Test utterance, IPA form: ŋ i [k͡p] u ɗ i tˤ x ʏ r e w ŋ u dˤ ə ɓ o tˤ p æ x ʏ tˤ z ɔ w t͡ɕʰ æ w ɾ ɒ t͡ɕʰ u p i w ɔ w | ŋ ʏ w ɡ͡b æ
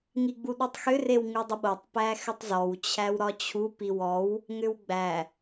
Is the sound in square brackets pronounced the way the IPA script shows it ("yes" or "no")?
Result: no